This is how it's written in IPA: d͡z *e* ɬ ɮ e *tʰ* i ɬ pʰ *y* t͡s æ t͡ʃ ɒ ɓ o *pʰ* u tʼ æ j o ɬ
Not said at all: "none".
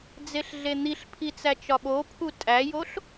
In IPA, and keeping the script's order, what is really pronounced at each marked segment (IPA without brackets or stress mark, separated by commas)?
e, n̪, i, pʰ